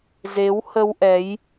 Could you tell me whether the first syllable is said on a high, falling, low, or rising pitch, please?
rising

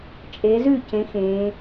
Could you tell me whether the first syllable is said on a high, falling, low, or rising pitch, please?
rising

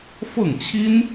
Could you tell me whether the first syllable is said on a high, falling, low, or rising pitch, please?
falling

